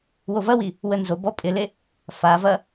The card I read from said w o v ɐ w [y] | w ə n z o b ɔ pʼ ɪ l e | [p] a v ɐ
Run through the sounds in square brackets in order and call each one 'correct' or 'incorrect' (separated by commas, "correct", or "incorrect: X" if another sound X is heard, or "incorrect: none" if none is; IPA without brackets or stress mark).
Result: incorrect: i, incorrect: f